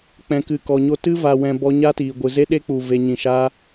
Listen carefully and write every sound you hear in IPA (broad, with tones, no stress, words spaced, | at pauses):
k͡pɛ̃˨kɨ˨kɔ˨ɲo˧ tɨ˦va˨wɛ̃˨ bɔ˧ɲa˦tiː˨ ɡʷɨ˨ze˦ɗe˦k͡pu˨ ve˨ɲĩ˨ ʃa˦